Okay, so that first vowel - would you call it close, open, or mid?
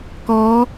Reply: mid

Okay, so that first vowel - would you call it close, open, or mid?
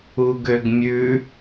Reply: close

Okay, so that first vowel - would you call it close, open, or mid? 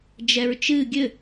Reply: mid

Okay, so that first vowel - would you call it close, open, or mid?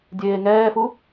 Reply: mid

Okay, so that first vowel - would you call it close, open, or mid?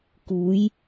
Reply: close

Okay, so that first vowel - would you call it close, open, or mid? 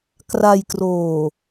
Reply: open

